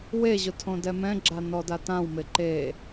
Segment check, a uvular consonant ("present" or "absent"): absent